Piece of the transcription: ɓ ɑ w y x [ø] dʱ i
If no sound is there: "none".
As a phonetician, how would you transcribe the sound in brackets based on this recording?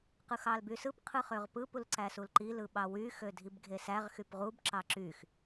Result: ø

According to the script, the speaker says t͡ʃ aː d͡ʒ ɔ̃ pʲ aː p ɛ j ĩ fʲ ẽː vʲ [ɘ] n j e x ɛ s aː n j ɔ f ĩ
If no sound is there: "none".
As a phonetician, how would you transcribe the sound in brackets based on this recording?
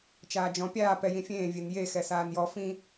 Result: e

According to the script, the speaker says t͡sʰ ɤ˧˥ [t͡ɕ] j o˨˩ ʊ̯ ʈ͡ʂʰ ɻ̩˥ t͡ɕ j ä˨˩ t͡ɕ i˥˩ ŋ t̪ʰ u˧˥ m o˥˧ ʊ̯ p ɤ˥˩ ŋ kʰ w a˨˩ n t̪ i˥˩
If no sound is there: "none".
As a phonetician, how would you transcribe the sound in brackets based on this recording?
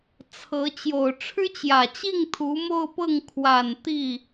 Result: t͡ɕ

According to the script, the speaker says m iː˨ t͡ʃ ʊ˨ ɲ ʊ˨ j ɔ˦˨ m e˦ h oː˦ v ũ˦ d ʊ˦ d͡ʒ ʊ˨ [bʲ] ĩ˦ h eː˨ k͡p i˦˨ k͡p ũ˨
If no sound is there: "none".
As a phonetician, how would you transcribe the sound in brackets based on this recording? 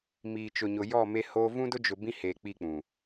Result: b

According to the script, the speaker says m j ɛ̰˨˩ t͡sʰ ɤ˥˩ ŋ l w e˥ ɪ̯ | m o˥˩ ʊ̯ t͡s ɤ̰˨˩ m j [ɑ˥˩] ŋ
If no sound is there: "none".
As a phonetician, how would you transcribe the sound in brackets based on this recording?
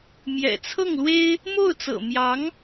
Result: ɑ˧˥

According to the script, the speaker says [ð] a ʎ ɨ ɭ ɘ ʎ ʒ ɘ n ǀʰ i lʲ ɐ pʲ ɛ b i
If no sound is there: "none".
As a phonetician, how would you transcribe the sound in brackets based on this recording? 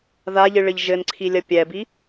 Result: ð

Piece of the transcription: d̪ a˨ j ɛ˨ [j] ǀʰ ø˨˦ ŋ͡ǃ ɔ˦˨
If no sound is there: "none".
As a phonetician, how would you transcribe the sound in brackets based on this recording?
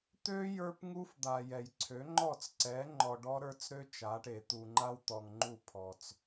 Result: j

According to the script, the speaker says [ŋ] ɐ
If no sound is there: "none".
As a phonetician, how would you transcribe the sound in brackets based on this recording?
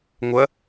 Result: ŋʷ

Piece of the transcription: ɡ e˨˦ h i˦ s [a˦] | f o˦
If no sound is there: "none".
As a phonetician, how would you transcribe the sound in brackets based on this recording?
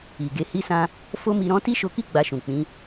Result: ã˦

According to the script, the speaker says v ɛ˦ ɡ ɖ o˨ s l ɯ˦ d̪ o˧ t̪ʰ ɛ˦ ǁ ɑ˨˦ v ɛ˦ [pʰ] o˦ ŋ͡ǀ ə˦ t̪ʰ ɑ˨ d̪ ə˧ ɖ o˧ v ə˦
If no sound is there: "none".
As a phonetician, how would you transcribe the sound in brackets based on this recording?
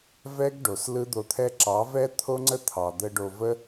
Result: t̪ʰ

